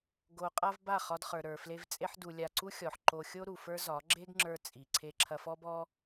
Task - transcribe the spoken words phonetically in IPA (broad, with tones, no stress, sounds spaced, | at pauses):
ɡ o˧ qʼ a˦ v b a˦˨ χ ɒ˧ d χ ə˞˨ ɾ ə˞˨ f l e˧ v t͡sʼ e˦ ħ d u˧ lʲ a˧ ǀ u˦ xʲ ɔ˨ ħ ǃ o˦ xʲ o˦ ɾ u˨ f ə˞˦ z ɒ˨˦ ɡ͡ǁ e˦ ɡ ŋ͡ǁ ə˞˧ t͡sʼ i˨ ǀʰ e˧ ǁʰ ɐ˧ f ɔ˦ b ɔ˦